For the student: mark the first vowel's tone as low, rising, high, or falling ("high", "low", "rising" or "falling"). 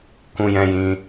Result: high